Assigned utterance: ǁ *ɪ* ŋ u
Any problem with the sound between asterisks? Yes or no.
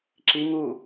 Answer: yes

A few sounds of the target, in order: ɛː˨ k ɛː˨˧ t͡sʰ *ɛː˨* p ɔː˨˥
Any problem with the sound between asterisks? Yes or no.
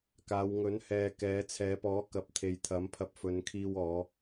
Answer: yes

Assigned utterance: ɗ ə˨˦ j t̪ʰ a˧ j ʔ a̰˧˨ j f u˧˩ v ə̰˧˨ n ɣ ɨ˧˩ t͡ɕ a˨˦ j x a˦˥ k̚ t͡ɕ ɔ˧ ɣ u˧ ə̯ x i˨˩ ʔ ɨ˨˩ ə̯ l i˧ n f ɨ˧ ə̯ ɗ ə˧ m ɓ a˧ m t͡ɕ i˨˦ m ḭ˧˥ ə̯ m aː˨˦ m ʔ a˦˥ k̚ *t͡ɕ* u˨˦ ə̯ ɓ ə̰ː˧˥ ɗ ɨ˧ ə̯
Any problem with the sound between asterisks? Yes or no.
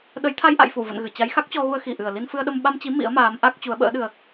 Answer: no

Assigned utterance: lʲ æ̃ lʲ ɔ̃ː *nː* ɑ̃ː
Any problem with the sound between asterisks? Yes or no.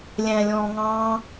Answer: yes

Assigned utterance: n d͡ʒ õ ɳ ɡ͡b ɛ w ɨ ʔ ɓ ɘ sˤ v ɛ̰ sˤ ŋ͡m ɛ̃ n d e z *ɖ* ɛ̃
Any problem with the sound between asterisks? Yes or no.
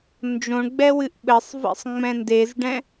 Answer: no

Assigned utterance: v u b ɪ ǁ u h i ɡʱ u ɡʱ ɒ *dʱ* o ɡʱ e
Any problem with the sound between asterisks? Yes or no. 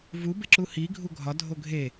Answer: no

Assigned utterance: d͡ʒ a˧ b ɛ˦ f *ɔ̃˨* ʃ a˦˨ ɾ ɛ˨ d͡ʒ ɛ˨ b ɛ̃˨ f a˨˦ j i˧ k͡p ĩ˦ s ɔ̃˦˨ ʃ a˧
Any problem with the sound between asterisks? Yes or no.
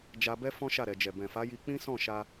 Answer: yes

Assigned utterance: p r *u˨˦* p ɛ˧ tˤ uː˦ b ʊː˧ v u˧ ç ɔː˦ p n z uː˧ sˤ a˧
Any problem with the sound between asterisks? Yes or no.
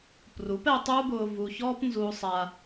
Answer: no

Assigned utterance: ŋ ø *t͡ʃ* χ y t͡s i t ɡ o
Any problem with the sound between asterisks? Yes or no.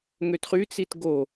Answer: yes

